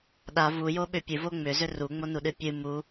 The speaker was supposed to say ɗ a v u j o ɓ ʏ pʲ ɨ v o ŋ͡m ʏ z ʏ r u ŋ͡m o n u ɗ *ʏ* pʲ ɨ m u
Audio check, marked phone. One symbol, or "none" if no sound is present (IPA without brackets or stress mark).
ɨ